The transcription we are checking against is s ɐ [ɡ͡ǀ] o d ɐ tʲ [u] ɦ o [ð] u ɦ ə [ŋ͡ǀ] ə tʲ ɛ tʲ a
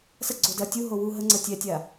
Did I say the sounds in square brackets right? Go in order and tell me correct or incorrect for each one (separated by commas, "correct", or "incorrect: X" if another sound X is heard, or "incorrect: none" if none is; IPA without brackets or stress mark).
correct, correct, incorrect: w, correct